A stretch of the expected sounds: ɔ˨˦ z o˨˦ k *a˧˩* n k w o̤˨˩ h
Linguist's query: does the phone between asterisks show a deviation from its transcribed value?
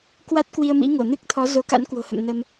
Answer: yes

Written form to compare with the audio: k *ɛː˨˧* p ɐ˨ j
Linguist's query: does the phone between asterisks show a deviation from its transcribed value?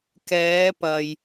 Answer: no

